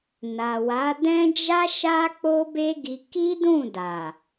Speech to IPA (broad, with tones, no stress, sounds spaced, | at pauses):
n a˨ w a˨˦ d ɛ̃˦ d͡ʒ a˦ ʃ a˦ k͡p o˦ b e˦ ɡ i˧ k i˦ d ũ˦˨ d a˨